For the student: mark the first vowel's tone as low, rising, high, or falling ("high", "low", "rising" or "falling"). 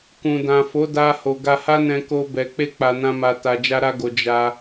low